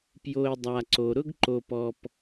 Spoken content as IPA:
pjo˧ɪ̯ dˤa˧ǀo˧ ɾʊ˥ɡǃo˧pɔ˧p

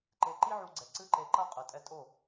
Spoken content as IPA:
ǃe˧ǃi˦ʕu˧ɡ͡ǀɛ˨ ǀɨ˦ǃe˧ǃɐ˦ qʼɨ˨tʼɛ˧tʼo˦˨

